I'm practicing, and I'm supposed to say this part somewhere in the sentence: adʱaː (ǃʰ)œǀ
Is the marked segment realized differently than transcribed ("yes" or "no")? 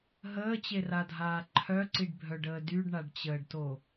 no